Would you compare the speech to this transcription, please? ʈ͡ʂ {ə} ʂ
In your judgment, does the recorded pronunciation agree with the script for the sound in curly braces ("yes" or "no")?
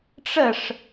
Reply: yes